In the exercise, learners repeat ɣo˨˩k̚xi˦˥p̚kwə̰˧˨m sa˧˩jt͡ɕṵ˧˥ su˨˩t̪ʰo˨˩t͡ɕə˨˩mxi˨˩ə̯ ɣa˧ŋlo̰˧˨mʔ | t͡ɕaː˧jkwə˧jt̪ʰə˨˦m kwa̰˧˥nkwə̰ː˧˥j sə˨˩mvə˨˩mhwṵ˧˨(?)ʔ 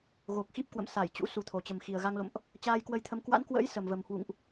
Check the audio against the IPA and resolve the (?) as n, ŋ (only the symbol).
ŋ